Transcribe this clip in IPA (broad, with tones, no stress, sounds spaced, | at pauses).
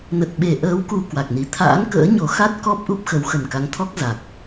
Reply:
n ə˨˩ t̚ ɓ e˧˩ ʔ əː˨˦ w k u˨˩ k w a˨˩ k̚ n i˨˩ t̪ʰ a̰ː˧˥ n k ə̰ː˧˥ ɲ o˨˩ x a˦˥ t̚ k ɔ˦˥ p̚ ʔ u˦˥ p̚ x ə˨˦ w x ə˨˩ n k a˨˦ ŋ t̪ʰ ɔ˦˥ k̚ z a˨˩ k̚